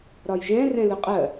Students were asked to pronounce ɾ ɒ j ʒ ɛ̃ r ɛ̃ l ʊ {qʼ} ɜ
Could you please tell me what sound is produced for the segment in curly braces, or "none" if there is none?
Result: qʼ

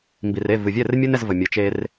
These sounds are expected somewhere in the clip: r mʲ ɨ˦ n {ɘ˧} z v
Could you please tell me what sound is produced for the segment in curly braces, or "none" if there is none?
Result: ɛ˧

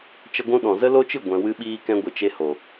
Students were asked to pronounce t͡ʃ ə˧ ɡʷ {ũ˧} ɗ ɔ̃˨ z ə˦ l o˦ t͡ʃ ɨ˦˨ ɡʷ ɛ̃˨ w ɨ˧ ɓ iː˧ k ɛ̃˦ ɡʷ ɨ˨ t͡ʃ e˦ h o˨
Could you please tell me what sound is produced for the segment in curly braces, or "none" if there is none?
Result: ũ˦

